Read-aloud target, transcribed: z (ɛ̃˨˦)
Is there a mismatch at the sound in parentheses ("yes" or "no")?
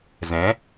no